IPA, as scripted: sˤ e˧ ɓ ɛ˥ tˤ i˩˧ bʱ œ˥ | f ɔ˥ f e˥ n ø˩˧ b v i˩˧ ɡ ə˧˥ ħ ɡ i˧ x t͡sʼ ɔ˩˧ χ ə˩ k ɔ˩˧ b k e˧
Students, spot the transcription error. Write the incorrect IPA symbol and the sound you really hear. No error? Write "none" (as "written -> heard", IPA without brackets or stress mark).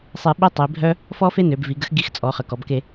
ħ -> x